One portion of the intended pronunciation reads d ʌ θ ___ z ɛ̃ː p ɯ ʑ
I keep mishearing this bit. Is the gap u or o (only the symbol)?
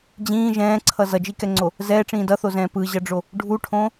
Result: o